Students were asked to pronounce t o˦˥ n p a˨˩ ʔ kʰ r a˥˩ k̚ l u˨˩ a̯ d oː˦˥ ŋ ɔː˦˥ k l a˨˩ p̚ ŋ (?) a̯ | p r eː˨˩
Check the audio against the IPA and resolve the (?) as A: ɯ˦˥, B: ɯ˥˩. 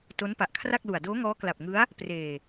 A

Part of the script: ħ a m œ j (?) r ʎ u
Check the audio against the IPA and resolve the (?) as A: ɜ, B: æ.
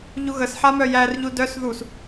B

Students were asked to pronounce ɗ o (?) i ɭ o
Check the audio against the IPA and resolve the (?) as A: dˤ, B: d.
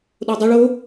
A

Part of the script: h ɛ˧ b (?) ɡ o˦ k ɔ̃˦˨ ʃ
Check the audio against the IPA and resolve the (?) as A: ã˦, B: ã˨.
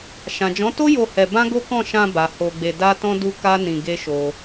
A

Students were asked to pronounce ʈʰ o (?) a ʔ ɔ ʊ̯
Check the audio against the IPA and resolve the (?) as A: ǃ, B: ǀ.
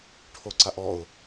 B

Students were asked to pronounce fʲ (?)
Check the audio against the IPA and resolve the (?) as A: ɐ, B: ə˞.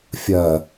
A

